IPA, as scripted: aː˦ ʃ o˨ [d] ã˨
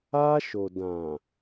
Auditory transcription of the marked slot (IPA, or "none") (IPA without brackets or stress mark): d